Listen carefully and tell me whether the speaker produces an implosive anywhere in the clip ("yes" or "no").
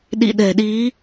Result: yes